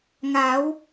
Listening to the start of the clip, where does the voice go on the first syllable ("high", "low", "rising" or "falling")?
rising